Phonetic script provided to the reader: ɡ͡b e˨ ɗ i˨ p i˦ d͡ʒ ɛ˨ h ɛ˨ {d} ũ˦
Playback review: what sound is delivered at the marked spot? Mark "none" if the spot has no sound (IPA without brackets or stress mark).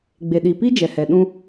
ɗ